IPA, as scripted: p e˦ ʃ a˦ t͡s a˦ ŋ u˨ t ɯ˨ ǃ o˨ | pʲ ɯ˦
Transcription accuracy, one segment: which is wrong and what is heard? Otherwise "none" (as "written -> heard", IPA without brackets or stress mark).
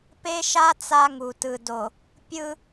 ǃ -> d